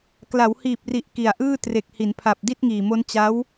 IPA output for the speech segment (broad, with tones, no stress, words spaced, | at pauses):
kla˩˦whiː˨˩p̚ri˨˩ʔ ki˨˩a̯ʔɯː˥˩ tre˨˩k̚hi˩˦npʰa˨˩p̚ di˥˩t̚ŋiː˨˩mo˦˥n t͡ɕa˦˥w